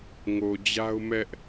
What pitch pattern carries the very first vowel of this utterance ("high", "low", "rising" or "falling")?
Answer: low